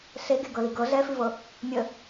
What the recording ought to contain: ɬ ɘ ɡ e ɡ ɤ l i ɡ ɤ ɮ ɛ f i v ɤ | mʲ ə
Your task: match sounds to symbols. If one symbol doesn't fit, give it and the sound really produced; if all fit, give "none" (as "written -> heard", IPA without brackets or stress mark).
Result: ɘ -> e